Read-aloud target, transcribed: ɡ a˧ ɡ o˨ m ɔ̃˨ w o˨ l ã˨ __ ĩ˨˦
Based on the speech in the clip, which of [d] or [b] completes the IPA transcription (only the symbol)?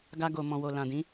d